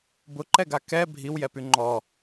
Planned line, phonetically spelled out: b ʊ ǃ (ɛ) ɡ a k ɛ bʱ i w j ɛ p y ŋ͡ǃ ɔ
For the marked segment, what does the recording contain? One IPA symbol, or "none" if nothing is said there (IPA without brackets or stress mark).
ɛ